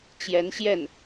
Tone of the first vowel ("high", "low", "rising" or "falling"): rising